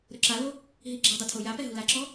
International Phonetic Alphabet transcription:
ɾʊǁalo | ɦiɡ͡ǁadˤʊ tʰojapɛ ɦulaǁɔ

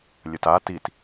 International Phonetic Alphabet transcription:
lʲəta tit

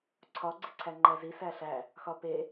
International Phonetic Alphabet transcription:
ǀʰɒ ɡ͡ǀiǀʰæŋ͡ǃæzi sæɬæ | xɒpe

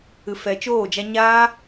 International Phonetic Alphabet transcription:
ɨ˧ fɛ˧t͡ʃoː˦˨d͡ʒa˦ ɲaː˦

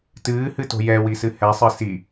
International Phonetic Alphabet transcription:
tɨːhɨto̤ jɛwisɨ hɛsˤɨ si

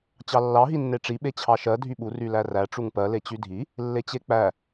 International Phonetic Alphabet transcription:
t͡ɕɑlːɑ ɦinːeʈ͡ʂi ɓet͡ɕʰɑʃɜ dʱyɓur ylæræ ʈ͡ʂuŋpɜ let͡ɕydʱi | lːet͡ɕek͡pæ

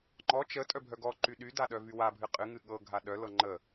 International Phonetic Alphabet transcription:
ŋ͡ǃɔ t͡ʃə tʼœbʱœɡɔǃy ɗyda ɗœvywabʱɨ qʼɨŋɨ ɠɤɡʱa ɗœlɤ ŋ͡ǃə

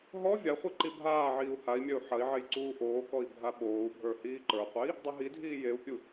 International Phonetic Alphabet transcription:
ɦɔ vʲaχʷi ǃibʱaːʕiːu̯ hai̯mʲœu̯ ħɐi̯ʕej ǀuːʔoːkɔi̯ bʱaɓoːu̯bʱə˞ hiːǃə˞qʷei̯ | dˤœɦidʱiː jeu̯pʲu

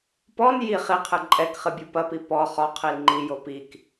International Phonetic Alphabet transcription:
pɔn ji χiqʰɨ ǃʼɛkχɨ bʲupɐpi pɔ χɔ qʰilŋ͡ǃijo pik

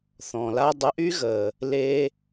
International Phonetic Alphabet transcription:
θɔ̃˨la˦ dˤə˧ʔy˦ɣə˨ | le˧

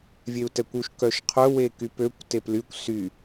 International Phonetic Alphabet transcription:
vʲeu̯tɛkʷuʃ kœʃqʰœ wekypøkʷ teplykʷ sy

